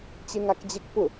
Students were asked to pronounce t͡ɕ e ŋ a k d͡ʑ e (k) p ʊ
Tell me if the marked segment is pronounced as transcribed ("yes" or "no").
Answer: yes